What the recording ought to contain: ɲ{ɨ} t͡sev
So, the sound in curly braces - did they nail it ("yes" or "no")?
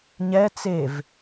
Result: no